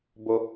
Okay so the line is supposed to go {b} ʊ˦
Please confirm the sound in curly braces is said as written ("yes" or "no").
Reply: yes